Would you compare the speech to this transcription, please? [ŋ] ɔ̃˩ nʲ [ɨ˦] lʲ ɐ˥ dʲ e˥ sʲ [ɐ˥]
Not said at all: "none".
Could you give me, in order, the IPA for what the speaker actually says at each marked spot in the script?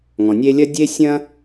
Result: ŋ, e˦, ɐ̃˥

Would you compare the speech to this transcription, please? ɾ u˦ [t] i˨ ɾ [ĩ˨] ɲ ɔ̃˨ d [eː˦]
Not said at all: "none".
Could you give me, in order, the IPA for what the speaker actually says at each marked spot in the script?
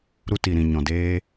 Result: t, ĩ˨, eː˦

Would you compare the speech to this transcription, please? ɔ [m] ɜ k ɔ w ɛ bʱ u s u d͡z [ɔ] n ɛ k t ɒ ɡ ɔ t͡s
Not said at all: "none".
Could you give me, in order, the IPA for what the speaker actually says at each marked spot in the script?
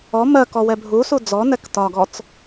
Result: m, ɔ

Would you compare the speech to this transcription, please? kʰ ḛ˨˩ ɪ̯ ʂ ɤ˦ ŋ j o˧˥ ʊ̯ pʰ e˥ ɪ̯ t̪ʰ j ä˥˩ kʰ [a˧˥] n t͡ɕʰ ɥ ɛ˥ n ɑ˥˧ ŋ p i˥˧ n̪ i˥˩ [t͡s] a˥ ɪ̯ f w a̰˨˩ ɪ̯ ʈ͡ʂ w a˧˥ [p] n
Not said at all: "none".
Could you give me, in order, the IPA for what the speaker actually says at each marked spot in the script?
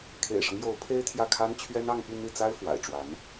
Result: a˥, t͡s, none

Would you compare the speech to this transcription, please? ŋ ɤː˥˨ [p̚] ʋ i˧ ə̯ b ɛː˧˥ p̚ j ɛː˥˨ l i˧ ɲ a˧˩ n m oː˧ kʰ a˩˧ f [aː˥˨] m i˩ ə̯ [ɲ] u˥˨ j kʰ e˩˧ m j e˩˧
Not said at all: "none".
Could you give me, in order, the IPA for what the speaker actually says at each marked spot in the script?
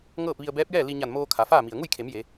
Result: p̚, aː˥˨, ŋ

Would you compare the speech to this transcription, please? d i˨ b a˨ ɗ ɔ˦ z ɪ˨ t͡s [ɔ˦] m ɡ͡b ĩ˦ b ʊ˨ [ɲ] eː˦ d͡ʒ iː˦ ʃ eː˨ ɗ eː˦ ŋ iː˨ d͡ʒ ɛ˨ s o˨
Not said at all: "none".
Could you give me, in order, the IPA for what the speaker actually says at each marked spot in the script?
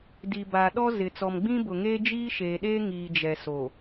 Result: ɔ˨, ŋ

